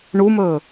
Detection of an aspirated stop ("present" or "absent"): absent